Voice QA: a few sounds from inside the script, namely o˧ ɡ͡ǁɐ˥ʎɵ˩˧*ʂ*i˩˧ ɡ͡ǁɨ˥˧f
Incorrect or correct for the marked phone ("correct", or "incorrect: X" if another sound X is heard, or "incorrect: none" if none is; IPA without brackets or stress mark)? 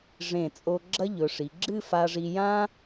correct